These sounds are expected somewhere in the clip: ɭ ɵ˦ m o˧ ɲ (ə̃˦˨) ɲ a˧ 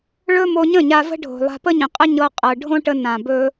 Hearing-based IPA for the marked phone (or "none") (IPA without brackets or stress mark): ə̃˦˨